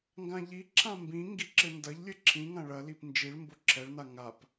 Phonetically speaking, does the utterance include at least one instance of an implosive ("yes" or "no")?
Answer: no